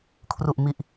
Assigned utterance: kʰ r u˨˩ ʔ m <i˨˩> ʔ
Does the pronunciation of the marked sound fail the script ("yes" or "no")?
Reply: no